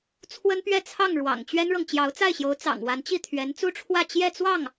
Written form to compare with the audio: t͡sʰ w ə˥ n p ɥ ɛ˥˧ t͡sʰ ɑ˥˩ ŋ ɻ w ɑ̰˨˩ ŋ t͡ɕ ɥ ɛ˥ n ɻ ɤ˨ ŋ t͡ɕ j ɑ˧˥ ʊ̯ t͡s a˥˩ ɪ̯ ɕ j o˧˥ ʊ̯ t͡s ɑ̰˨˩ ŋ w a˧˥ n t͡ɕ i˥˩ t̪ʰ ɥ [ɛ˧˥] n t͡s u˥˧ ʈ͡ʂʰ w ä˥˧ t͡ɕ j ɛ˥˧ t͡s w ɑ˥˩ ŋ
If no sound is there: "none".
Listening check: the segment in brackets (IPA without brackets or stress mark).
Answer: ɛ˧˥